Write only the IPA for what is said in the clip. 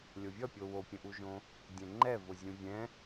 lʲ o vʲ ʌ pʲ o w o pʲ ə̃ ʔ u ʒ õ | dʲ ɛ̃ ŋ͡ǃ ɛ v ʊ zʲ ũ vʲ ɛ̃

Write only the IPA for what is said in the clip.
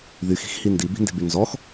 ð y x i̤ x h i n d i b i̤ n d e̤ b y n z ɔ x

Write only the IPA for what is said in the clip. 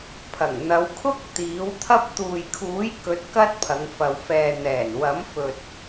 pʰ ɐ˨˩ ŋ n̪ ɐ˨˧ w kʰ ʊ˥ k̚ t̪ iː˨˥ w t̪ʰ ɐ˥ p̚ t̪ uː˨ j kʰ uː˨˥ j k ɵ˨˥ t̚ k ɐ˥ t̚ pʰ ɐ˨˧ ŋ f ɐ˨ w f ɛː˨ n̪ ɛː˨˩ n w ɐ˨˥ m f ɵ˨ t̚

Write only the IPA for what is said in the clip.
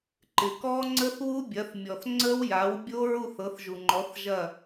ǃ ɪ˩ k ɔ˦˥ ŋ͡ǀ ə˦˥ θ w u˦˥ bʲ ɐ˩˥ θ mʲ ɔ˩ θ ŋ͡ǀ ə˦˥ w j a˩˥ w bʲ o˦˥ ɹ u˥˩ θ ɤ˩˥ θ ʒ u˩ ŋ͡ǃ ɔ˩˥ θ ʒ ɐ˥˩

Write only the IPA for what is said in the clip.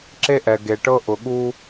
ǁ e˦ ʔ ɛ˨ ɡ e˨ ʈ ɤ˦ ʔ ʊ˨ ɠ u˦

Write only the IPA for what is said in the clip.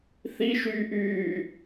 θ i ʃ yː ʔ yː

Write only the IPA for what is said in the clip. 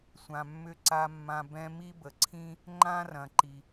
sʷ ã˩ mː ʏ˧ ǀ a˧ mː ã˧ b ɛ̃˧ m i˥ b ə˩ ǀʰ ĩ˥ | ŋ͡ǃ ã˥ r ɐ̃˩ ǃ i˩

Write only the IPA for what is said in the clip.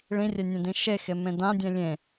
ɭ ĩ rʲ ɛ nʲ ɛ̃ d ĩ ʃ e x e m ẽ d ã dʲ ɛ̃ lʲ ẽ

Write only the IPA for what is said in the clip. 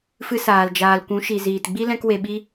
f ɨ˦ s aː˧ l d͡ʒ aː˧ l kʷ ũ˨˦ ʃ i˨ z iː˨ t ɡ͡b i˦ l ɛ̃˦ k w e˧ ɓ i˦

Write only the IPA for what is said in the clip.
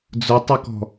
d͡z ʊ tˤ o k ɔ̤

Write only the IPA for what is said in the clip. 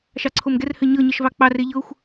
ʃ ɑ ǀʰ o m ɡ ɛ r h ɘ ɲ ɤ ɲ ə ʃ v ɑ k͡p ɑ r e ʎ ɤ xʷ

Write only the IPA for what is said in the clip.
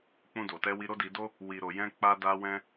k͡p ũ˧ d o˨ t ɛ˧ w i˧ ɾ o˦ d i˧ d o˦ | w i˨ ɾ o˨ j ɛ̃˧ k͡p a˧ d a˧ w ɛ̃˧

